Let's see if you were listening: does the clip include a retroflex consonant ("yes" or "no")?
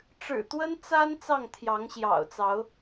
yes